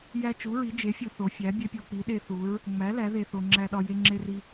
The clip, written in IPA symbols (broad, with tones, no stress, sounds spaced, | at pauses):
j æ˦ t͡ʃ u˨˥ ɹ i˨˥ d͡ʒ e˨˥ fʲ u˦ θ o˨˥ fʲ æ˨˥ bʲ e˦ pʲ o˦ k͡p i˨˥ ɗ e˦ θ u˨˥ ɹ | ŋ͡m æ˨˥ l æ˨˥ ð e˦ θ o˦ ŋ͡ǁ æ˦ ɗ ɒ˦ j e˦ ŋ͡ǁ e˦ r i˦